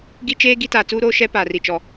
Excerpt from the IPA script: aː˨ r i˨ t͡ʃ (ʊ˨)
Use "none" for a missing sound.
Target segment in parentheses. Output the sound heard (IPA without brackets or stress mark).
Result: ɔ˨